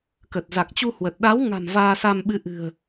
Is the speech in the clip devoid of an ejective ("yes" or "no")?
yes